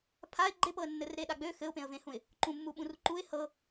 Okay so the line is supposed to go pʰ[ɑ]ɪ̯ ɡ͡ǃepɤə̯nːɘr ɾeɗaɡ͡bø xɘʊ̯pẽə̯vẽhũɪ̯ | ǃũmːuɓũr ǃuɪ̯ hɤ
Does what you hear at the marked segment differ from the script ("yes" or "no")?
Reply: yes